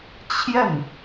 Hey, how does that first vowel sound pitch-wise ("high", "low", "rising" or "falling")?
falling